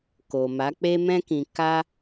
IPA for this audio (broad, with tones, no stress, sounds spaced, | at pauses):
k o˨ m a˨˦ k͡p e˦ m ɛ̃˦ k ĩ˧ k a˦